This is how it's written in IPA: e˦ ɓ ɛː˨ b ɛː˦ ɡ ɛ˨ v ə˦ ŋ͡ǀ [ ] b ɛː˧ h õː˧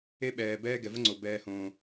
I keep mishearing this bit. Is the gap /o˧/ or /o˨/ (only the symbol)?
o˨